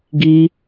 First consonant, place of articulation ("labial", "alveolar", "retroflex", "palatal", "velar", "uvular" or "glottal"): velar